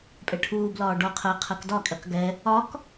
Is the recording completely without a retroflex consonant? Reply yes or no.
no